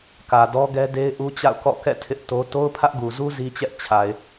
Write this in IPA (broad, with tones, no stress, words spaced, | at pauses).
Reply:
kä˨dɔ˦ɡɛ˦de˦ɪ̯ ʔu˦t͡ɕa̰˦˨ʊ̯kɔ̰˦˨ kɛ̰˦˨ tʰɪ˦ʔto˦ to˦ʊ̯pʰä˦ʔɡu˨zu˦ zi˦t͡ɕɛ˦ʔ t͡ɕʰa˨ɪ̯